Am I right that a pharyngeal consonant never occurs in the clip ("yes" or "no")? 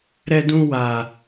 yes